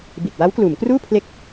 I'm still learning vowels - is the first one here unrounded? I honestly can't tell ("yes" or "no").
yes